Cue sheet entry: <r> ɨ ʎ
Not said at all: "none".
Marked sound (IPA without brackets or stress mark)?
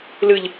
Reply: l